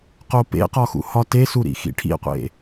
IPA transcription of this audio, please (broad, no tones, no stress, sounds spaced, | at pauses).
q o p ḛ q ɒ x ṵ h ɒ t e s u ɾ ḭ x ḭ ʈʰ ḭ qʷ ḛ